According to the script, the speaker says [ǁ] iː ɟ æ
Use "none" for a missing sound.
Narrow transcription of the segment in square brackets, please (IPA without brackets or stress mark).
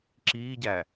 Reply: ǁ